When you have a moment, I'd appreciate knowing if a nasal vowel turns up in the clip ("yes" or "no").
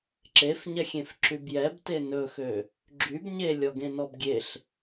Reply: yes